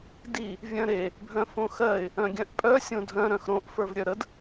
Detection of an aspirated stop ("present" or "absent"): absent